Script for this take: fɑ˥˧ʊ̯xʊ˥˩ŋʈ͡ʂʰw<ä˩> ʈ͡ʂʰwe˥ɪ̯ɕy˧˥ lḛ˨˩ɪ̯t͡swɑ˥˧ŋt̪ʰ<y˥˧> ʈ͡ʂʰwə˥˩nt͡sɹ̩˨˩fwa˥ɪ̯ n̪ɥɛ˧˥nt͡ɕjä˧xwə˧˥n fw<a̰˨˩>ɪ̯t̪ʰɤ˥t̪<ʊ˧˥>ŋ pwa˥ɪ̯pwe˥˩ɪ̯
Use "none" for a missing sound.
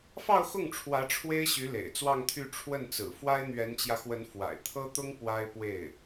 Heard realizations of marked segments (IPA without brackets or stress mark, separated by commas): ä˧˥, y˥˧, a̰˨˩, ʊ˥